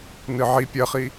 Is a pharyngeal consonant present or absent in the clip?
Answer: present